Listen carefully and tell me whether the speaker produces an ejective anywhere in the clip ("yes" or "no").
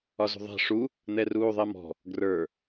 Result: no